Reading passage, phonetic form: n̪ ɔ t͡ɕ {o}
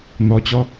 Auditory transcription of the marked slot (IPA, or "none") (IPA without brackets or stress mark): ɔ